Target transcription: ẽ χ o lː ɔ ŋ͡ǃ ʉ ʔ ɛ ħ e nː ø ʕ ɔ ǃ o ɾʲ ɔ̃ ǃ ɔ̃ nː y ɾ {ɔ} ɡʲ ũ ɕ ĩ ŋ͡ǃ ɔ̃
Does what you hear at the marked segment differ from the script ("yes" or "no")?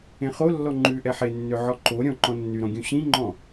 yes